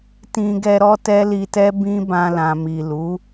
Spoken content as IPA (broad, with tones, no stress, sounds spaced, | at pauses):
t ĩ˧ ɡ ɛ˧ ɾ ɔ˦ t ɛ˦ l i˧ t ɛ˦ b ĩ˦ b ã˧ l ã˨ m i˨ l u˨˦